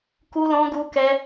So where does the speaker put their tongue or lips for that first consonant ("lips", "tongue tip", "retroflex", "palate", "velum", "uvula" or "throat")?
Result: velum